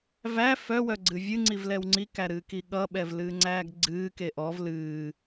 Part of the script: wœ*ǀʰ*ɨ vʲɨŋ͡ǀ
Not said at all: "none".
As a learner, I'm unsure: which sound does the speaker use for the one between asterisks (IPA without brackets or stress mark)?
ɡ͡ǀ